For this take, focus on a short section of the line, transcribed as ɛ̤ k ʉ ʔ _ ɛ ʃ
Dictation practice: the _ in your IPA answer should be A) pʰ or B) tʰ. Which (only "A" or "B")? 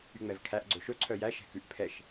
A